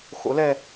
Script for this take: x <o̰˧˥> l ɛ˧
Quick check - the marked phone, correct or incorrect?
correct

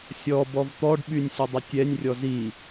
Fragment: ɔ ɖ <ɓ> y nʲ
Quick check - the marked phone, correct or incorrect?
correct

